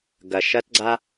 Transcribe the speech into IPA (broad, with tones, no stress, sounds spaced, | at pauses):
ɡ ɐ˩ ʃ ɐ˥ t ɡ͡ǀ a˥